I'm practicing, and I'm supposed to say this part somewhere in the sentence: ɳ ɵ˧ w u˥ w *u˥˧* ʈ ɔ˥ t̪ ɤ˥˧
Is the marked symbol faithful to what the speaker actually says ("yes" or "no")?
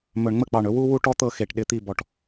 yes